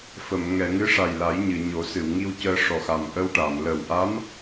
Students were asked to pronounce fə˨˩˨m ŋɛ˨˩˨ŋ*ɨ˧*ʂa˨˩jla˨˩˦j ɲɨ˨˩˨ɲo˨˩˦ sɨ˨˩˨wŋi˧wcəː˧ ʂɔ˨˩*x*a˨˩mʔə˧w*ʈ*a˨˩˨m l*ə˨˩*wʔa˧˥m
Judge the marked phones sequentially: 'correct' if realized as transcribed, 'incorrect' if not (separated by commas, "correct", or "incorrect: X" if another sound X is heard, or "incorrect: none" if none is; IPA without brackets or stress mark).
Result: incorrect: ɨ˧˥, correct, correct, correct